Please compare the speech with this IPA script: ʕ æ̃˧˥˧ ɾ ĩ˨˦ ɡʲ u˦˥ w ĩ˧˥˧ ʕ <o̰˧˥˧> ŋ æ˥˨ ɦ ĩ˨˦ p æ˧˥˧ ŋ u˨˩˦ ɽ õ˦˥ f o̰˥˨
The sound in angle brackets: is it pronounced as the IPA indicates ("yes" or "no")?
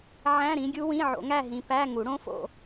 no